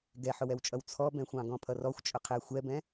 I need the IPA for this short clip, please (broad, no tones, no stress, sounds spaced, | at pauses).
ɡ ɛ ħ ʊ w ɛ w t͡ʃʼ ʌ w t͡sʰ ɔ b ɛ̃ xʷ ɑ̃ ɡ ɔ̃ pʰ ʌ r ɔ xʷ t͡ʃʼ ʊ qʰ ɛ xʷ ɛ b ɛ̃